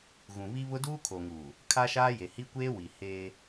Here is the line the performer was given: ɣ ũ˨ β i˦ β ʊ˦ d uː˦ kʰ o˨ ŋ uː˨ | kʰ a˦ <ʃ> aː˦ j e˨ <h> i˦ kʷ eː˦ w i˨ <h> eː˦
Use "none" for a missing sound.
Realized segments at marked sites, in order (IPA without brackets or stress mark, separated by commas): ʃ, h, h